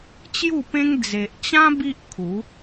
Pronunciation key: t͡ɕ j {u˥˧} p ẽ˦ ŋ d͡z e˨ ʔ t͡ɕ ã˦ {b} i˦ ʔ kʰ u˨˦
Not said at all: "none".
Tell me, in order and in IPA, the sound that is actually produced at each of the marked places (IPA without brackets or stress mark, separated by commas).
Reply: u˥˧, b